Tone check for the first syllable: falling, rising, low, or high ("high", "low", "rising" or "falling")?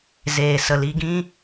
low